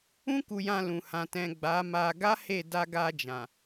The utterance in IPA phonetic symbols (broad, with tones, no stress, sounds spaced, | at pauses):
ũ˦ k u˧ j ã˧ l ũ˨ h ã˨ t ɛ̃˨ ɡ͡b a˨˦ m a˧ ɡ a˦ h e˦˨ d a˧ ɡ a˧ d͡ʒ ã˨